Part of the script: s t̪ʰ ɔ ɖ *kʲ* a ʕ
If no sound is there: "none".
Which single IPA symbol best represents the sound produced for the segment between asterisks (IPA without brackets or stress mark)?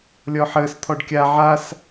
kʲ